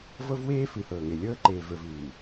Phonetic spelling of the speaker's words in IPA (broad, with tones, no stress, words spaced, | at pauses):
vɤ˦vweː˦ fɨ˨hɤː˨ŋe˨ lʲɤː˦ǃeː˨və˞˨vɨː˨